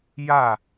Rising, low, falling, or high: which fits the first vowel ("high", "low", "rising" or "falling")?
falling